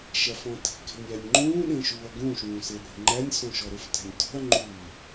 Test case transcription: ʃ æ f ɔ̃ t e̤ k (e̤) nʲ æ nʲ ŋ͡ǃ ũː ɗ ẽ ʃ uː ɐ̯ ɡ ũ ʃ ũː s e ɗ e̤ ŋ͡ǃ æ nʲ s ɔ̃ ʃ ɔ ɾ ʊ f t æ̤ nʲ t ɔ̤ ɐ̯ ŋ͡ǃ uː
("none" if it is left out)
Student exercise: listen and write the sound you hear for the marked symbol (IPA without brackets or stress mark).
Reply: e̤